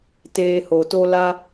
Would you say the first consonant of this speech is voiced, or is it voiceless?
voiceless